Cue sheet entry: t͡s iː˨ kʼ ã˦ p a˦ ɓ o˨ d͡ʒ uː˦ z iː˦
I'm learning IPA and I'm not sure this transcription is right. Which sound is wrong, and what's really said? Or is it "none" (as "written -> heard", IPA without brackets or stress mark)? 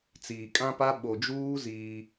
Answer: none